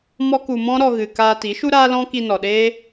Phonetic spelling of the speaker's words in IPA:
m ɔ˦ k u˧ m ɔ̃˦ ɾ ɔ˧ ɣ ɨ˨ k aː˧ t i˨˦ ʃ u˦ ɾ aː˦ l ɔ̃˦ k i˧ n ɔ˨ ɗ eː˦

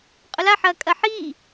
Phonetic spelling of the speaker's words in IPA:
qʼ ʊ l a ħ ɐː kʼ ɐ ħ iː

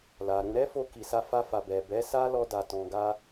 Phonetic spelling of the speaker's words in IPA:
l a˨ ɾ ũ˧ ɾ ɛ˦ f o˧ k i˨ s a˧ f a˧ f a˨ b ɛ˨ b ɛ˨˦ s a˦ l ɔ˦ d a˧ t ɔ̃˧ ɡ a˦

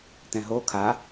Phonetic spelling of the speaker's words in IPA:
t ɛ̃ ɦ o kʰ a

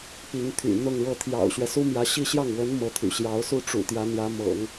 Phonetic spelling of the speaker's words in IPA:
p i˧˥ ŋ t̪ʰ y̰˨˩ n̪ ʊ˥˧ ŋ ɻ ɤ˥˩ t̪ʰ j ɑ̰˨˩ ʊ̯ ɕ ɥ ɛ˦ s u˥ m j ä˧˥ ɕ i˥˧ ɕ j ɑ˥˩ ŋ w ə˧˥ n m ɤ˧˥ t̪ʰ y̰˨˩ ɕ j ɑ˧˥ ʊ̯ s u˥˩ ʈ͡ʂ ṵ˨˩ t̪ j ä˧˥ n̪ j ä˧˥ m ɤ̰˨˩˦ ŋ

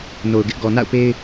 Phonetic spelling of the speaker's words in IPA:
n o˨ ʊ̯ ɡ ɪ˦ ʔ ɡ ɔ˨ n a̰˦˨ ʊ̯ p e˦ ɪ̯

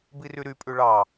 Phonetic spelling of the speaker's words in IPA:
b i r y ɾ y pʼ ʉ ɭ ɑ

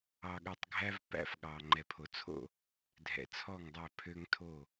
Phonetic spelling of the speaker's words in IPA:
ɑ˨ ɠ œ˨ tˤ ɡʱ æ˦ v p æ̰˦ f ɠ ɑ˨ ŋ͡ǃ ɛ˨ pʰ o˨ t͡sʰ o̰˦˨ | dʱ ɛ̰˨ t͡sʰ ɔ˦˨ ŋ dˤ æ˦˨ pʰ ø˦ ŋ tʰ o˦˨

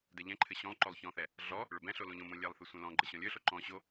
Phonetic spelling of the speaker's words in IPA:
d ɛ ʎ ɛ̃ ǃʰ ɘ ɕ õ lˠ ǃ o lˠ ç ɔ̃ θ ɛ | ɮ ɔ | ɭ ɵ b ɛ̃ ɬ o l õ ʎ õ m õ lʲ ɛ lˠ θ ɘ sʷ ɛ̃ l ɔ̃ ɡ͡ǃ ɘ ɕ ɔ̃ lʲ ɵ ɬ o ǃ ɔ̃ ɕ o

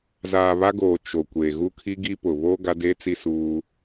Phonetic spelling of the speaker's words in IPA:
z aː˨ β a˦ ɡ oː˨ t͡ʃ o˨ kʷ eː˨ ɣ u˦ kʰ i˦ ɡ i˦ p ʊ˨ β o˦ ɡ a˦ d eː˦ t͡s i˦ s uː˦

